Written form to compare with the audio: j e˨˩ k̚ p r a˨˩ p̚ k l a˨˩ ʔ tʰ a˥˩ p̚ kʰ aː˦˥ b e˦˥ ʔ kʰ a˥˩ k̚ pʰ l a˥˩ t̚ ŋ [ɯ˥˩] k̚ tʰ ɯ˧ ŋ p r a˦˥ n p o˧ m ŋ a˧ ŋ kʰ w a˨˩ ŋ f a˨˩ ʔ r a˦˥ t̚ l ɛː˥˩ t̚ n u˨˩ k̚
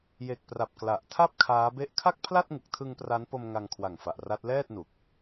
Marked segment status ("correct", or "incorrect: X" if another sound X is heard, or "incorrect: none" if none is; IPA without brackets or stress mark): incorrect: ɯ˨˩